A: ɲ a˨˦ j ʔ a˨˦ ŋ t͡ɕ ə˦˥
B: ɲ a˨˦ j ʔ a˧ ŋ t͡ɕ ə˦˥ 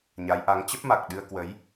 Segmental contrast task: A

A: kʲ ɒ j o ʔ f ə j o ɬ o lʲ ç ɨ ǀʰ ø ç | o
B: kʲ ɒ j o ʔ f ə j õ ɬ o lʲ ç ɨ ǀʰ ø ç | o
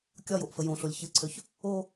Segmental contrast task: B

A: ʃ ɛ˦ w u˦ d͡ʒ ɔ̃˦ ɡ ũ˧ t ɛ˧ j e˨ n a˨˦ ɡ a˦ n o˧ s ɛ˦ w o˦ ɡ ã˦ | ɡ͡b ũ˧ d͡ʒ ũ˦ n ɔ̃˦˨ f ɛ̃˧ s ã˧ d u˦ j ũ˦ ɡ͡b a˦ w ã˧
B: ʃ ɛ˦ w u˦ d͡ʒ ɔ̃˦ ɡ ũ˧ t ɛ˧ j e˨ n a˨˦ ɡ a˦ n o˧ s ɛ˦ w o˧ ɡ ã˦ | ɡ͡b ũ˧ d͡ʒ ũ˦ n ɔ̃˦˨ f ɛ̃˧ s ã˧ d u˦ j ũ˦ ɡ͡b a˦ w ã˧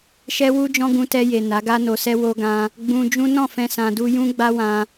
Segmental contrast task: A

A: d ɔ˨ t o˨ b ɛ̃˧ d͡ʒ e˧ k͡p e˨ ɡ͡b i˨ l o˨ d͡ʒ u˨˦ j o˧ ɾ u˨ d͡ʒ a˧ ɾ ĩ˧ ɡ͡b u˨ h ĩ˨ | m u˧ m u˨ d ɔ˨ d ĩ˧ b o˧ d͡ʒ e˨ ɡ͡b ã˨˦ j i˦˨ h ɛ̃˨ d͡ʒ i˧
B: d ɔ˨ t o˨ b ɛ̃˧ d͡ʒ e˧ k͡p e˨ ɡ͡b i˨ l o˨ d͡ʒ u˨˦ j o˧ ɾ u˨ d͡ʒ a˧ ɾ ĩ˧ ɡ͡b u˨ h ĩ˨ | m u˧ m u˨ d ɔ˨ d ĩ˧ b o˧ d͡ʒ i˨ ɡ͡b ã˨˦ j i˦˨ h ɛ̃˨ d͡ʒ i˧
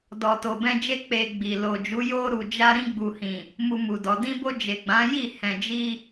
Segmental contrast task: A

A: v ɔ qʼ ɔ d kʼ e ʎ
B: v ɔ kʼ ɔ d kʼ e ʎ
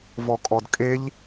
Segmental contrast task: B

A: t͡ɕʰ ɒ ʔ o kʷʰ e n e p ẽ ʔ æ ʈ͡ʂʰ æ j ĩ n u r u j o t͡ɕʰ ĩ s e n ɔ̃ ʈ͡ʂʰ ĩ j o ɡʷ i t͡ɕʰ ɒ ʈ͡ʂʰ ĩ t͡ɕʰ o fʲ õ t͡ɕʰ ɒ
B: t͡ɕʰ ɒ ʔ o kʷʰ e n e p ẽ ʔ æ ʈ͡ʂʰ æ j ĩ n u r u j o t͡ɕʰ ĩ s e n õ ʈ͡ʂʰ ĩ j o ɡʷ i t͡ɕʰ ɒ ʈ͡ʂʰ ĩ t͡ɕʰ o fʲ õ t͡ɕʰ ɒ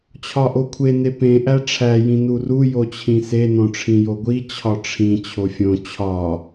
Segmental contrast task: B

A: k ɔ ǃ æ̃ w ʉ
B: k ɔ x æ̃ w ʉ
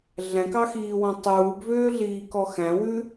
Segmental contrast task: B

